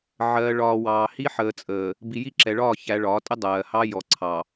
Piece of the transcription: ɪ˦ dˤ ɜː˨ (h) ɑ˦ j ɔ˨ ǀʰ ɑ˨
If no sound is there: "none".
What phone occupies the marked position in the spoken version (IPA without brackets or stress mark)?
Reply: h